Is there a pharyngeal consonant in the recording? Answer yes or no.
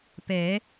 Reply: no